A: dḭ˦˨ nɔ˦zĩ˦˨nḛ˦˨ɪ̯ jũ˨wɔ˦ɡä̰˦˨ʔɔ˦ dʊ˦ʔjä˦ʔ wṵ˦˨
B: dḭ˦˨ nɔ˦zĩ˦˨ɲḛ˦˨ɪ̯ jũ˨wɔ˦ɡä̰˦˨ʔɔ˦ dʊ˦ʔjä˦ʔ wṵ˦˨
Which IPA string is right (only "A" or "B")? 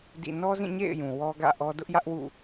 B